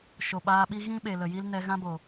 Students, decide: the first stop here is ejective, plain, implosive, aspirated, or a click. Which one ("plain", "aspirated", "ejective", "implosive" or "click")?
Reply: implosive